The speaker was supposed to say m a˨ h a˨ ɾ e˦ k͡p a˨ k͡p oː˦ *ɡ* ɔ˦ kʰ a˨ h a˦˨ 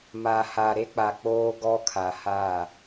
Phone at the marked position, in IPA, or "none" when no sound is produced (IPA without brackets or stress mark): ɡ